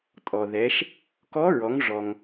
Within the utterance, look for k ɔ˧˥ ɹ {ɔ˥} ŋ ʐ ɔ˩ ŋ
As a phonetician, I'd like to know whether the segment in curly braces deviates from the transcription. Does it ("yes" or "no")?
yes